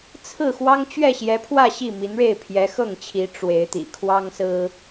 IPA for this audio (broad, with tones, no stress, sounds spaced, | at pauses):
t͡sʰ ɹ̩˥˩ x w ɑ˥ ŋ t͡ɕ ɥ ɛ˥˩ ɕ j ɛ˧˥ pʰ w ä˥˧ ɕ i˥˩ m i˧˥ n ɻ e˥˩ ɪ̯ pʰ j ɛ˧˥ x ɤ˥˩ ŋ t͡ɕʰ i˧˥ ʈ͡ʂ w e˧˥ ɪ̯ t̪ ḭ˨˩ kʰ w ɑ˥ ŋ s ɹ̩˥